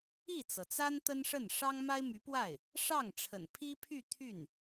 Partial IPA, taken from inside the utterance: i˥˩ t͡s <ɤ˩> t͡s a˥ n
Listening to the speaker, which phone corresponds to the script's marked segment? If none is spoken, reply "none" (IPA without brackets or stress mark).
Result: ɤ˩